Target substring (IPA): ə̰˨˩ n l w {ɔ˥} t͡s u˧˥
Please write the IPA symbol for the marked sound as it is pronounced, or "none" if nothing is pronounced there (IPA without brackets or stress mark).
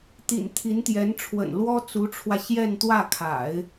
ɔ˥